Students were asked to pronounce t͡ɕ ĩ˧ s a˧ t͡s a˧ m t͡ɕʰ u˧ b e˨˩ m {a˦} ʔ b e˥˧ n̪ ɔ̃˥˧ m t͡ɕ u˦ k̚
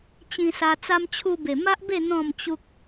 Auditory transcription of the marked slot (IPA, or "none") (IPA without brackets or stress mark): a˦